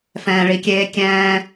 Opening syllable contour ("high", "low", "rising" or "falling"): low